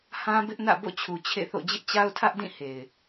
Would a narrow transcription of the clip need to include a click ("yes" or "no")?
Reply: no